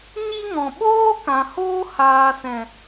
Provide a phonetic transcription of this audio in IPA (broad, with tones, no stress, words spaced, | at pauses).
ɲi˦ŋɔ̃˨ ɓoː˦kã˨ hoː˦haː˨sɛ̃˨